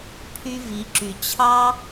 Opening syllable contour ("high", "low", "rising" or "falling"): high